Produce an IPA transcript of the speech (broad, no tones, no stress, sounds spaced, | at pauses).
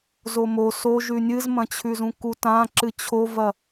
z o m o s o ʒ ʉ nʲ ɨ z m ɐ̃ t͡ɕʰ ʉ z ũ k u t ã ǁ ɨ t͡ɕʰ o v ɐ